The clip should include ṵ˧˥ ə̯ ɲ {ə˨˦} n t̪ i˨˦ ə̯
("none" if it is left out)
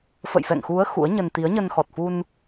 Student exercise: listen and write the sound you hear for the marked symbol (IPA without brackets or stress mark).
ə˧